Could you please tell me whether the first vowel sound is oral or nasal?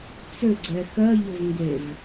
oral